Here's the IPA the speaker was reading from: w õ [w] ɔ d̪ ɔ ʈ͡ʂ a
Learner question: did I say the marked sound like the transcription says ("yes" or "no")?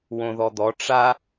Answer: no